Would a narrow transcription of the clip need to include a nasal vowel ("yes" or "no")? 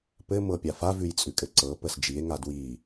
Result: no